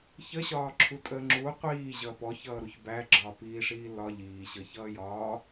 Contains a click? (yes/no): yes